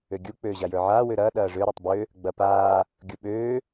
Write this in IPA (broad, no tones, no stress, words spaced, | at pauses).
øɡʲuk͡pøː ʑajə˞ʕaː wøɾɐː ɗɐːʐø ɾə˞tˤbø | ɡ͡bɐpaː | ɡʲuɓøː